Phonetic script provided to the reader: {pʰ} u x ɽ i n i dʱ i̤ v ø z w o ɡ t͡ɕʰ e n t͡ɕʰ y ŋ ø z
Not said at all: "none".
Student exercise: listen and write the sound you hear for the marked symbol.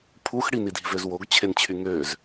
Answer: pʰ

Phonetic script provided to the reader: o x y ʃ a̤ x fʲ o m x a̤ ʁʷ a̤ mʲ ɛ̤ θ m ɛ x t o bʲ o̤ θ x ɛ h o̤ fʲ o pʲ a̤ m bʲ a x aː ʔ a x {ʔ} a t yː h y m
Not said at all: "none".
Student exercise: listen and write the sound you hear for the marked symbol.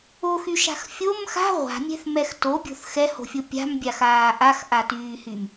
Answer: ʔ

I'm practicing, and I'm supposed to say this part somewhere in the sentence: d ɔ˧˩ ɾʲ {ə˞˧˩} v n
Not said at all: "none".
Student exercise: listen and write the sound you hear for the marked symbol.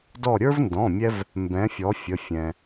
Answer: ə˞˦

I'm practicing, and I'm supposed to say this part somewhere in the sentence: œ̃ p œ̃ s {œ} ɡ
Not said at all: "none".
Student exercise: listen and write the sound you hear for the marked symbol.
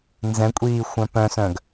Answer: œ̃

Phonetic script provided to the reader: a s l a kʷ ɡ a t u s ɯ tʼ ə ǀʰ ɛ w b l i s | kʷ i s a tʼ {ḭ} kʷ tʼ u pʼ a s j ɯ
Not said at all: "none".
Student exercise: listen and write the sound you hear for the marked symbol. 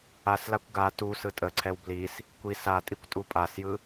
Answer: i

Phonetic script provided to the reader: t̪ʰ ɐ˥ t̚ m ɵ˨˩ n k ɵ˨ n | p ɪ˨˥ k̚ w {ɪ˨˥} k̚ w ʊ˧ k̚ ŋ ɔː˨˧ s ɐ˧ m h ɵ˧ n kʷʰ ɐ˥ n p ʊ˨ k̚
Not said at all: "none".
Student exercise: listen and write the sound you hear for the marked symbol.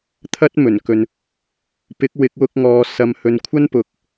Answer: ɪ˨˥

